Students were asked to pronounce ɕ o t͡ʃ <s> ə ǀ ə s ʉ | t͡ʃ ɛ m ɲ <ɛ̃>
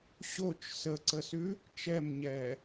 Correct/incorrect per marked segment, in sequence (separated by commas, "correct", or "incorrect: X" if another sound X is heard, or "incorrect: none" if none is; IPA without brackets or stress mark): correct, incorrect: ɛ